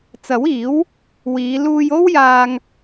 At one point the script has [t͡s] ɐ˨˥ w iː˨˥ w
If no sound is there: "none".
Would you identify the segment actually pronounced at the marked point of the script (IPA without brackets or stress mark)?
t͡s